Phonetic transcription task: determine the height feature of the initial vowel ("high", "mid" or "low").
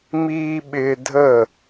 high